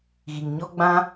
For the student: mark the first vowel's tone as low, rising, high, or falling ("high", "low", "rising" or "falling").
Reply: low